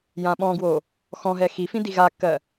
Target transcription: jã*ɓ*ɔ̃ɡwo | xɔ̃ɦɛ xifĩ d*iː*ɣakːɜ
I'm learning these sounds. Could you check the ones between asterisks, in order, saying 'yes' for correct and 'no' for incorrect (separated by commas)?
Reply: yes, no